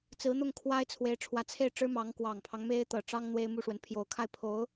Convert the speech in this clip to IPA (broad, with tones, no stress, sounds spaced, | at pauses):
t͡s ɹ̩˧˥ n̪ ʊ˥˩ ŋ kʰ w a˥ ɪ̯ t͡sʰ w e˧˥ ɪ̯ ʈ͡ʂʰ w ä˧˥ t͡sʰ e˥˩ ɪ̯ ʈ͡ʂ ɻ̩˥ m ɑ˧˥ ŋ k w ɑ˨˩ ŋ pʰ ɑ˦ ŋ m e˥ ɪ̯ t̪ ɤ˨˩ ʈ͡ʂ ɑ˥ ŋ n̪ w e˥ ɪ̯ m u˥˩ ʂ w ə˧˥ n pʰ j o˨˩ ʊ̯ kʰ a˥˩ ɪ̯ pʰ o˧˥ ʊ̯